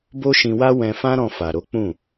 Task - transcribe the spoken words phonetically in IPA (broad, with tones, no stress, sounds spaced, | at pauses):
b o˦ ʃ ĩ˧ w a˦ w ɛ̃˧ f ã˦ ɾ ɔ̃˧ f a˨ ɾ o˨˦ k͡p ũ˦˨